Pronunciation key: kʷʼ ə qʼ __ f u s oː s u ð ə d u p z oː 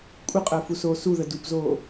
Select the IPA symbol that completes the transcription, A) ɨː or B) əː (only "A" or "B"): B